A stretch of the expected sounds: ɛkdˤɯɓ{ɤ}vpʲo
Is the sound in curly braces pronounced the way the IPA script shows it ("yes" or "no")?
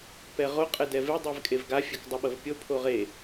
yes